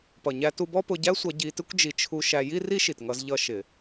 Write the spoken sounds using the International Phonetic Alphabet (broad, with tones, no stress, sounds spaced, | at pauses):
p ʌ˩ ɲ æ˧ t u˧ b ɔ˥ p ʊ˧ ɟ æ˥ sʷ ʌ˧ ɟ i˧ t ɪ˥ kʷ d͡ʒ i˧ t͡ʃʰ u˧ ʃ æ˧ j i˥ r i˥ ʃ i˩ t ŋ ʌ˧ z ʎ ʌ˧ ʃ ɪ˩